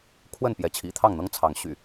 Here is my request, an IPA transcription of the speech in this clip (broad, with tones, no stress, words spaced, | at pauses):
kʰwə˥˨n pjɛ˨˦t͡ɕʰḭ˨˩t̪ʰɑ˥˨ŋn̪ɤ˦ŋ t͡sʰɑ˨˦ŋ ɕy̰˨˩